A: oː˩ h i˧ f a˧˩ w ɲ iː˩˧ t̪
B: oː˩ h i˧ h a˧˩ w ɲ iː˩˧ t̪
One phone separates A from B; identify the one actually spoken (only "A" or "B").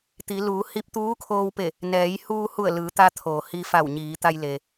A